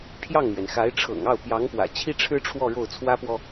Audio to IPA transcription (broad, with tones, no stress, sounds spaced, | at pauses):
pʰ j ɑ˥˩ ŋ m ɥ ɛ˩ n x a˧˥ ɪ̯ ʈ͡ʂʰ ɤ̰˨˩ ŋ ɑ˥˩ ʊ̯ p j ɑ˧˥ ŋ p w ä̰˨˩ t͡ɕʰ i˥ ʈ͡ʂʰ ɻ̩˥ ʈ͡ʂʰ w ɔ˥˧ ɻ o˥˩ ʊ̯ t͡sʰ w ä˥ p w ɔ˨